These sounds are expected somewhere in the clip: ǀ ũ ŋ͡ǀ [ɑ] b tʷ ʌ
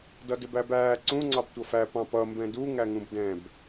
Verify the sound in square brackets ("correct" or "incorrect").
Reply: correct